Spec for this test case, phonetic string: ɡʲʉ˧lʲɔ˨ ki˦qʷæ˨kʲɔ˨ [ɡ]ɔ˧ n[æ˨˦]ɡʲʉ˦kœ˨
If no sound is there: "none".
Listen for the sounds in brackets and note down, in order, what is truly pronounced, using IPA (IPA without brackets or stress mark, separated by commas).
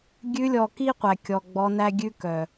ɡ͡b, æ˦